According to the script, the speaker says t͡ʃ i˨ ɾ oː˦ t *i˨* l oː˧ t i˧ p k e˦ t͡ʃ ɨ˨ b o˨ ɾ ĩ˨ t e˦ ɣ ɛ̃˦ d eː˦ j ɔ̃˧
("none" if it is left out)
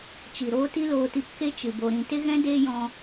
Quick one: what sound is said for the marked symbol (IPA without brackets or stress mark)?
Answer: i˦